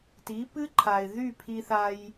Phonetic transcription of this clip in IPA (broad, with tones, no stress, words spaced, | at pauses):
ti˨˦pɨ˦ǃʰa˨ɪ̯ ðy˦˨pʰi˧θa˧j